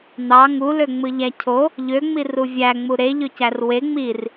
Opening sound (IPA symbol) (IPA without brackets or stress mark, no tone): n̪